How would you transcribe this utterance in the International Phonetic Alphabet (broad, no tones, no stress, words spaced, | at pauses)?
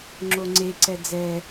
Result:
ŋ͡ǁoŋ͡ǀeǀɛ d͡zɛ